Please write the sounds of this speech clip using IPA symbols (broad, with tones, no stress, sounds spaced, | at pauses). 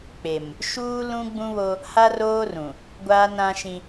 k͡p e˨ m | ʃ uː˦ l ũ˦ ɡ͡b ũ˦ β o˦ | h a˦ r oː˦ r ũ˨ | ɡʷ aː˦ n ã˦ ʃ ĩ˦